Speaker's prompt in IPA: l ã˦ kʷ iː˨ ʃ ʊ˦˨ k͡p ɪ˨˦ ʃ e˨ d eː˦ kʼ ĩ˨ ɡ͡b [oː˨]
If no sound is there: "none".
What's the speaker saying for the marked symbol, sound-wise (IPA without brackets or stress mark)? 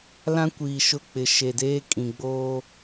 oː˦